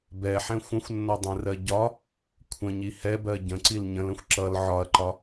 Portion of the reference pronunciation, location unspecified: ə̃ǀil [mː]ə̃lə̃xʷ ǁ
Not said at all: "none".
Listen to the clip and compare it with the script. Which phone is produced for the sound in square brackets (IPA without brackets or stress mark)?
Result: ɲ